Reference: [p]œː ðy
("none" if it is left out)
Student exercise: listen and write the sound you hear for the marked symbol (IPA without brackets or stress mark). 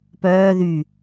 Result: p